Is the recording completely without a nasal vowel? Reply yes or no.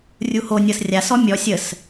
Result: yes